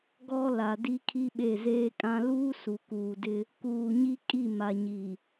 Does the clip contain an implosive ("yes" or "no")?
yes